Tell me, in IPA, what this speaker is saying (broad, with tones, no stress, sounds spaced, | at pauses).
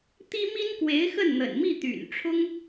t̪ i˥ m i˥ n k w e˧˥ ɪ̯ x ə˥˩ n n̪ ə̰˨˩ n m i˥˩ t̪ y̰˨˩ n ʈ͡ʂʰ ʊ˥ ŋ